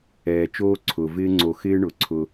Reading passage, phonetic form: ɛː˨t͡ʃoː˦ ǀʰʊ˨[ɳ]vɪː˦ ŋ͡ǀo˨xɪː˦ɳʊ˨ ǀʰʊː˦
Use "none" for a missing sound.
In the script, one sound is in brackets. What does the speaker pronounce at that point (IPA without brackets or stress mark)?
none